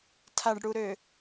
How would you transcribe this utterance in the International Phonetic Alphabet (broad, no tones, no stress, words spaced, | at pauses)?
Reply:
tʰaɖɽuɾø